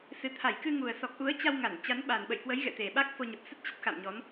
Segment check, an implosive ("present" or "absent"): present